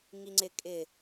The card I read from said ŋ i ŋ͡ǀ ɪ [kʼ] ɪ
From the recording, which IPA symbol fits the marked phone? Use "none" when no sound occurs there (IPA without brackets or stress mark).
kʼ